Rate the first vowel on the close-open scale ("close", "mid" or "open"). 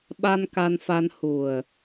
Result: open